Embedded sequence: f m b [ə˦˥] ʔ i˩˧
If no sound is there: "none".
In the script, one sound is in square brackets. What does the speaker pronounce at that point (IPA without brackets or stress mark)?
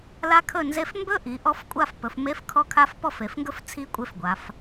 ɵ˦˥